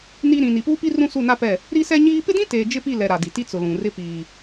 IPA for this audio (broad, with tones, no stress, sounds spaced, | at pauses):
n i˦ ɾ ĩ˨ n i˨ p uː˦ p i˦ r ũ˦ s u˦˨ n a˦ p ɛ˦˨ | ɾ i˦ s ɛ˦ ɲ iː˦ p ɪ˦ d ĩ˦ t eː˨ d͡ʒ ɪ˦ p i˦˨ l ɛ˨ ɾ a˨ d i˨ t i˦ t͡s ʊ˨ l ũ˨ r ɪ˦ p iː˦